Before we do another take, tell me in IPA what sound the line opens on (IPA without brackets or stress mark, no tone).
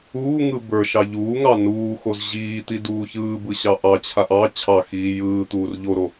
uː